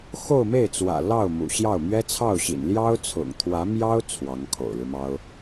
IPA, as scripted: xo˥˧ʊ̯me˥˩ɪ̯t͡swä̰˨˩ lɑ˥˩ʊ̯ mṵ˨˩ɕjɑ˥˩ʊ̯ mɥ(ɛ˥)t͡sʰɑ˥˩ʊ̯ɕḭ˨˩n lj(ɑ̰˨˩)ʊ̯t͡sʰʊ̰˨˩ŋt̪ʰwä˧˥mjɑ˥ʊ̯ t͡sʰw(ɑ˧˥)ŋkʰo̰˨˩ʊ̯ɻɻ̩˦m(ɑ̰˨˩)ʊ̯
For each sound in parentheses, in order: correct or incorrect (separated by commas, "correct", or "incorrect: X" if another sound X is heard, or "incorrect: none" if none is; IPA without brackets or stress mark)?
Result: correct, incorrect: ɑ˥, correct, incorrect: ɑ˥